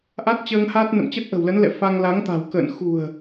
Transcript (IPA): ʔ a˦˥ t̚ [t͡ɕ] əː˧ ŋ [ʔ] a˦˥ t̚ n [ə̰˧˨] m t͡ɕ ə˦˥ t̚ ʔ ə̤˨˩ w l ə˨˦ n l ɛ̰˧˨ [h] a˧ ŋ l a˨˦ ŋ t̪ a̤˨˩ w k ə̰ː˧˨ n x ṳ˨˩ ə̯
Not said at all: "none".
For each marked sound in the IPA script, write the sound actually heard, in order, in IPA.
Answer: t͡ɕ, h, ə̰˧˨, f

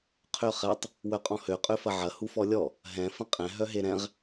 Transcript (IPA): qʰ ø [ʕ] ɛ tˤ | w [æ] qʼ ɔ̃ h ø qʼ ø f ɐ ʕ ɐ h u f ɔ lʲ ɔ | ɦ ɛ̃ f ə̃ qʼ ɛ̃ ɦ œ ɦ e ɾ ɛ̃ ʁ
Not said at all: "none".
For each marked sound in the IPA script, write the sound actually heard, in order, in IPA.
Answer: χ, œ

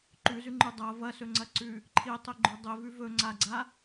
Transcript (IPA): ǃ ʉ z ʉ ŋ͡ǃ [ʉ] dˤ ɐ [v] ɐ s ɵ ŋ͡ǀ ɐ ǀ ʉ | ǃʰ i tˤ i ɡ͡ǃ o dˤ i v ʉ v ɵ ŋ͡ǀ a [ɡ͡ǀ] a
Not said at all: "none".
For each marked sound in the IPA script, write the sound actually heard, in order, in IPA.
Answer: ʉ, v, ɡ͡ǀ

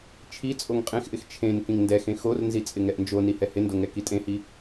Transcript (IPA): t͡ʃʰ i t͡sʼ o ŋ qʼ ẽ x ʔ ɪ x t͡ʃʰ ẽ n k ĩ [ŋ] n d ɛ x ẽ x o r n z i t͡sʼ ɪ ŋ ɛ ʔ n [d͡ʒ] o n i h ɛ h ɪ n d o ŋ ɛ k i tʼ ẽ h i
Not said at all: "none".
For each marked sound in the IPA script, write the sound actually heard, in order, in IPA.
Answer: ŋ, d͡ʒ

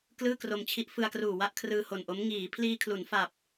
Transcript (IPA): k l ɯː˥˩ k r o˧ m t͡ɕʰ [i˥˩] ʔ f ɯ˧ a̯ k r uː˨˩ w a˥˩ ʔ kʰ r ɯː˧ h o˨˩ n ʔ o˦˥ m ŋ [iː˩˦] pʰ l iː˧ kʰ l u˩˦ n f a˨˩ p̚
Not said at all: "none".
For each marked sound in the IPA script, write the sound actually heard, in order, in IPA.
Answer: i˦˥, iː˩˦

